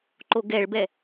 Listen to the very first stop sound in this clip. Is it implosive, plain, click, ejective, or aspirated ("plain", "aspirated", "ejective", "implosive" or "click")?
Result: click